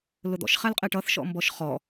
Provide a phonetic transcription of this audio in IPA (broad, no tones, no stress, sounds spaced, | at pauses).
l ʊ d̪ ɔ̰ ʃ χ æ l qʼ ɛ ʈ ʌ θ ʃ ɔ̰ m b ɔ ʃ χ ɔ